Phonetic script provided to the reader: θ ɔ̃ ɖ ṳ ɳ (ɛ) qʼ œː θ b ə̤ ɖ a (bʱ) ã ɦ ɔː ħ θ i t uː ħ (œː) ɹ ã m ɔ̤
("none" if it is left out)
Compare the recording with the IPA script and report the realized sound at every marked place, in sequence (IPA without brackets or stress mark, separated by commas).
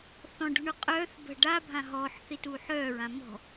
ø, bʱ, œː